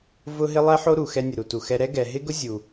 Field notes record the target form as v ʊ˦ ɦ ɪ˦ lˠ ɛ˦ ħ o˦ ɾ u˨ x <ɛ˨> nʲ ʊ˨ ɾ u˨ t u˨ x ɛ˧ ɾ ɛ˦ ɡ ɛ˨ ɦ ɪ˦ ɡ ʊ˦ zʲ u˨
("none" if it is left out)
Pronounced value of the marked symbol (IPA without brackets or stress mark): ɛ˧